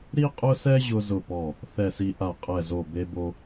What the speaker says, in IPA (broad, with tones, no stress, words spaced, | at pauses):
ɾi˦qʼʊ˦sɛ˦ ʑʊ˦zʊ˦˨pɔ˦˨ | θɛ˦˨si˦ ʔa˦˨qʼɛ˦˨zo˦˨ be˦bo˦